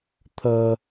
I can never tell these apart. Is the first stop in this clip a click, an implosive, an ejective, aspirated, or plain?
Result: aspirated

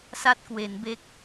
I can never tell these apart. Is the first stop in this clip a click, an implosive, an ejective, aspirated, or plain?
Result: plain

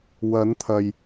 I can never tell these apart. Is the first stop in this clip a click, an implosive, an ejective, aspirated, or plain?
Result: aspirated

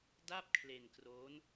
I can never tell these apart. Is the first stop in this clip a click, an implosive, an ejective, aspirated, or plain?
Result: plain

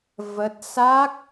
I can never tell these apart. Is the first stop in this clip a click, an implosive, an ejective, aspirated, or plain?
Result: plain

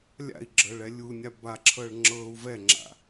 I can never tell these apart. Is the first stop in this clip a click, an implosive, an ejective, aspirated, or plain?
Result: click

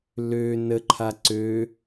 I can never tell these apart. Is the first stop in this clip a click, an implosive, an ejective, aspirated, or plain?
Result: click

